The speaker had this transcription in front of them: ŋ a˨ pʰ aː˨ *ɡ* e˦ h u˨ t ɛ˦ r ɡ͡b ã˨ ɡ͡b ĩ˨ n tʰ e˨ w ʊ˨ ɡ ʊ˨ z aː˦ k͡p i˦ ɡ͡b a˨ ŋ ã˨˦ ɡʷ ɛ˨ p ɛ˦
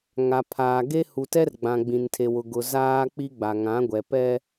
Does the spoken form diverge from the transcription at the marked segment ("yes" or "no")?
no